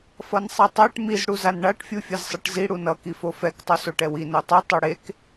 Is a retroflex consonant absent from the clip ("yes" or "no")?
no